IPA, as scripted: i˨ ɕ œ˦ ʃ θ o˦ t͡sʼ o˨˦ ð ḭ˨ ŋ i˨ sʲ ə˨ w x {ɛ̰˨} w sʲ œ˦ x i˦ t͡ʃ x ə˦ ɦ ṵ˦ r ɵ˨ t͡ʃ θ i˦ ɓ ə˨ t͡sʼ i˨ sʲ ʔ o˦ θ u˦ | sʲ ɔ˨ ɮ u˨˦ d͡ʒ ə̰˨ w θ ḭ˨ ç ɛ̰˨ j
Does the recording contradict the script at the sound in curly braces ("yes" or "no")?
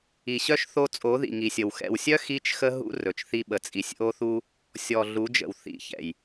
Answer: no